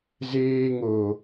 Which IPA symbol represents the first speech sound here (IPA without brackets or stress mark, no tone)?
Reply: z